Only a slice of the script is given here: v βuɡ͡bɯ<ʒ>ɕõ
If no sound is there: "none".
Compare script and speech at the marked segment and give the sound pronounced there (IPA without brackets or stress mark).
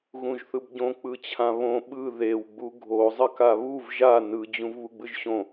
ʒ